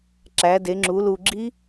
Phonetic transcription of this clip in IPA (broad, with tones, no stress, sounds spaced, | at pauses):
ǁ æ˨˦ d e˨˦ ŋ͡ǁ u˨˦ l u˨ ɡ͡ǁ i˦˥